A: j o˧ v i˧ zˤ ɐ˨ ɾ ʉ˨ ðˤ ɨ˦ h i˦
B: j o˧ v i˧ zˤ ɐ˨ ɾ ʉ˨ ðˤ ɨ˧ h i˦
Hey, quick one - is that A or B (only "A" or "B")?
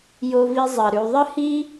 A